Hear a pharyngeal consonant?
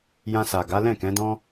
no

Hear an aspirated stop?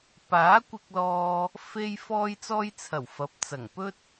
yes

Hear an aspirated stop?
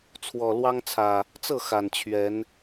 yes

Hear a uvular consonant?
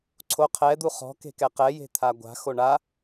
yes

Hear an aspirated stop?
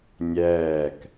no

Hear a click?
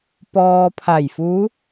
no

